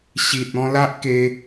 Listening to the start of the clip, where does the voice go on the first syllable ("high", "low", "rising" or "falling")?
low